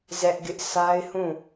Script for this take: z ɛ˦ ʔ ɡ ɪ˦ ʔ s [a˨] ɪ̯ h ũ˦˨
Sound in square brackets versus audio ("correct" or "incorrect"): incorrect